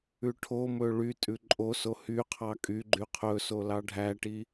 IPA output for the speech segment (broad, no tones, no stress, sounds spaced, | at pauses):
ʉ ʈʰ o m ɵ ɭ y tʼ ʉ ǃʼ o s o h y qʰ ɑ kʼ y ɡ͡ǃ y qʰ ɵ s o l ɑ ɖʱ æ ʈ i